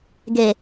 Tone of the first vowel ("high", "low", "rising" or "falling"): low